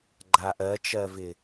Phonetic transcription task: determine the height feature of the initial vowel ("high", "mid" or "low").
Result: low